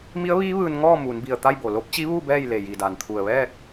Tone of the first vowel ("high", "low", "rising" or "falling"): rising